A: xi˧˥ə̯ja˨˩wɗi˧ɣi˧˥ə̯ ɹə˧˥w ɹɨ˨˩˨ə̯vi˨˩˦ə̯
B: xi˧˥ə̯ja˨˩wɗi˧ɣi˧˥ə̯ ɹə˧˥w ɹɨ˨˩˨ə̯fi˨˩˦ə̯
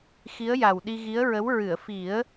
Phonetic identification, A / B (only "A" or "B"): B